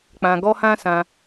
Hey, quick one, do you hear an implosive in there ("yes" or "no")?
no